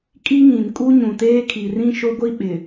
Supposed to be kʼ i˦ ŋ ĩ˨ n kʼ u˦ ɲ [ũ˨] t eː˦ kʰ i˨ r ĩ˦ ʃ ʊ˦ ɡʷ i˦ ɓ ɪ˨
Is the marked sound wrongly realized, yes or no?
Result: no